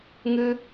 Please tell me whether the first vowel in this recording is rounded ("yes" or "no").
no